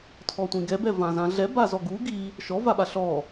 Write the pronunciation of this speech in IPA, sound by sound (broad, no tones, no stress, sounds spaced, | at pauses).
tʰ ɔ tʷ ĩ ɡ ɛ b ɛ v ã z ã ɮ ɛ b a z ɔ ɡ u ɡ i | ʃ ɔ v a ɓ a ɬ ɔ